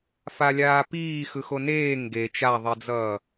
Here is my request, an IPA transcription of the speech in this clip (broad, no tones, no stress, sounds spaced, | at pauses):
f a lʲ aː p iː x ɯ x o n eː ŋ ɡ e t͡ʃ a ðˤ i d͡z ʌː